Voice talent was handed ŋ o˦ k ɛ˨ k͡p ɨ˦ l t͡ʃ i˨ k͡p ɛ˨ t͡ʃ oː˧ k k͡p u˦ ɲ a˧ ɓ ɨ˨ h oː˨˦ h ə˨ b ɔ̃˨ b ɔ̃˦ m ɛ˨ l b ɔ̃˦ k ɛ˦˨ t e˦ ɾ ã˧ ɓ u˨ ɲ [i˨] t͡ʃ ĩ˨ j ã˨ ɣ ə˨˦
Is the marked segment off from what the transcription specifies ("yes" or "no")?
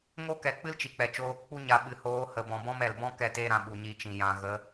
yes